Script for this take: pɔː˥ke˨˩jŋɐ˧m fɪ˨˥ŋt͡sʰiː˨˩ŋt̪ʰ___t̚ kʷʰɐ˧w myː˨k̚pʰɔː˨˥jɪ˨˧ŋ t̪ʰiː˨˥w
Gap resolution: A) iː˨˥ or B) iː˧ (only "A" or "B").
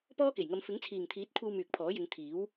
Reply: A